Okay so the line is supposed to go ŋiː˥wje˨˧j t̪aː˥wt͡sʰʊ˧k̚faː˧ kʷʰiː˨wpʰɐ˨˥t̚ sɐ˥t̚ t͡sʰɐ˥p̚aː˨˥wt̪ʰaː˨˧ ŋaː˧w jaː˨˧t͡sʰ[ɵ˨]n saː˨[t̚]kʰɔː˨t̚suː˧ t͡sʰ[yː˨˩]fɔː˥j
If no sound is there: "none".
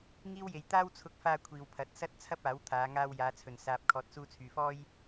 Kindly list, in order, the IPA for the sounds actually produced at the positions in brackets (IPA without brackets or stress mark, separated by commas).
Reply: ɵ˨, p̚, yː˨